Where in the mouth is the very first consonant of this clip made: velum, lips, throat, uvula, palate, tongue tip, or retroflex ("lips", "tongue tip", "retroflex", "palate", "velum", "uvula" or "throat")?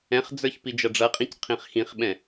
uvula